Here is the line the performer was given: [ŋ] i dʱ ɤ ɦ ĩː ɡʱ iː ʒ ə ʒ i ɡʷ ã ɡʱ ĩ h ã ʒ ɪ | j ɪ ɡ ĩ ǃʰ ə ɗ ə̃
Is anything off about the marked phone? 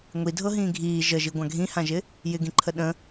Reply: yes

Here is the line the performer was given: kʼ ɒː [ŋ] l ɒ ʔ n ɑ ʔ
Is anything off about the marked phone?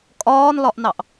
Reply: yes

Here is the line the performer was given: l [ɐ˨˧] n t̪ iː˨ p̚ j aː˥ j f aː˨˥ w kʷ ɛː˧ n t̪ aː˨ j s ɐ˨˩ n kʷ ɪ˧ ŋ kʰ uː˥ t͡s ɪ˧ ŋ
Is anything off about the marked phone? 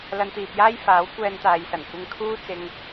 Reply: yes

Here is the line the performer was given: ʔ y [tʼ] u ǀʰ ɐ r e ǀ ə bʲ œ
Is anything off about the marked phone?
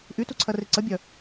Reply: yes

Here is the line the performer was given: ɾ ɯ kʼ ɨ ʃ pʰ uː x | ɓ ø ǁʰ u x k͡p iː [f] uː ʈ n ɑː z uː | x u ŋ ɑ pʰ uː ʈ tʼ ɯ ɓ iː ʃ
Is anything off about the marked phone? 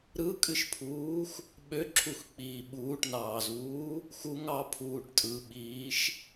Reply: yes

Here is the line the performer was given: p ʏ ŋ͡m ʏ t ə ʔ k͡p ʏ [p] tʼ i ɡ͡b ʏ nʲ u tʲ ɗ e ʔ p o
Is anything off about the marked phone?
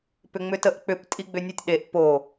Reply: no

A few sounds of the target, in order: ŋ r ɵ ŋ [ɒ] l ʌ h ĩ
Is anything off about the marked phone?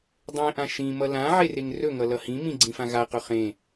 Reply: yes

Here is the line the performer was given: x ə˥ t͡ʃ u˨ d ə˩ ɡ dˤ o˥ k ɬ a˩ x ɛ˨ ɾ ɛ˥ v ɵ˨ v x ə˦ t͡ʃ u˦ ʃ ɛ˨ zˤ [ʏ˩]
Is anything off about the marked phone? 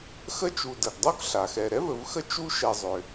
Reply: no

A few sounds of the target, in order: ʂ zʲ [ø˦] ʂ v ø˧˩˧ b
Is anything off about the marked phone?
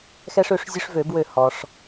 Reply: no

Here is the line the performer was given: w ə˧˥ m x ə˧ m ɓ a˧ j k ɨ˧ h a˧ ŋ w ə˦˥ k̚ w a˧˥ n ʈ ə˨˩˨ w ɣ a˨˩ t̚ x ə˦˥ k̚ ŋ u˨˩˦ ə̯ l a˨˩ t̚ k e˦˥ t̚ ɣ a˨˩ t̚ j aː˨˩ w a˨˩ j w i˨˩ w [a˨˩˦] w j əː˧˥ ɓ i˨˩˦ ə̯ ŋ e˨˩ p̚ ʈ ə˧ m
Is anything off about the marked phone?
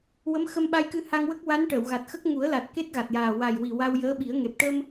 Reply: yes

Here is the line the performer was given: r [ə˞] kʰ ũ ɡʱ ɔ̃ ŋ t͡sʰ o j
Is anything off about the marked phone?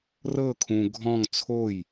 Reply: yes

